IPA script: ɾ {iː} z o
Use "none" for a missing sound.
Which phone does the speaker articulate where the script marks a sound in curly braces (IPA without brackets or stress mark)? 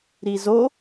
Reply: i